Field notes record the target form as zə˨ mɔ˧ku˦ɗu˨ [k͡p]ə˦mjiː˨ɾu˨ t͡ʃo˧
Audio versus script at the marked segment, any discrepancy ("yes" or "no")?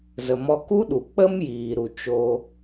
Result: no